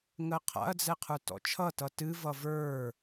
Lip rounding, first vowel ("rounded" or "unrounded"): unrounded